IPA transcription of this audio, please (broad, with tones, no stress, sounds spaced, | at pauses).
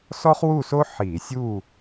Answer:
s ɔ˥ χ w u˥˨ s o˥ ħ i˧˩˧ sʲ u˥˨